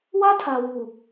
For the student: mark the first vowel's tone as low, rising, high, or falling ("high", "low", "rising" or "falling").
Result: high